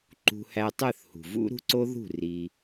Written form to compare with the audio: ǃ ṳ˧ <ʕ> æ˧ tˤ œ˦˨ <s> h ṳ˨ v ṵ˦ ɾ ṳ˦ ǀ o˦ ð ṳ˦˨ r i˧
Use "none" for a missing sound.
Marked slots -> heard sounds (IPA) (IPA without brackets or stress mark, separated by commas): h, θ